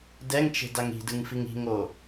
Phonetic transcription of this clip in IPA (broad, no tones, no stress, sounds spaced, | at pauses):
d ɛ ŋ t͡ʃ e̤ d a ŋ i̤ d ɯ ŋ f i ŋ i̤ ŋ o